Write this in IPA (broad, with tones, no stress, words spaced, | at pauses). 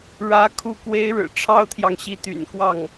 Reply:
ɻä˧˥ kʰu˥˩kwe˥ɪ̯ɻɻ̩˨˩ ʈ͡ʂʰɑ˥ʊ̯t̪ʰjɑ˨ŋ ɕi˧˥t̪y̰˨˩nkwɑ˥˩ŋ